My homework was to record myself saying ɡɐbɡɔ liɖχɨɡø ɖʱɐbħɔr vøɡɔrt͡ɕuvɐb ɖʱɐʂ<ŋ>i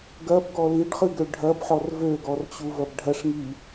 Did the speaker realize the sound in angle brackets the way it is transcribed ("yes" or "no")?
yes